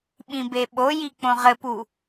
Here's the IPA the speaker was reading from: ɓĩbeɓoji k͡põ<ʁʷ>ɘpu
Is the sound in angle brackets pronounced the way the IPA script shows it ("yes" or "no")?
no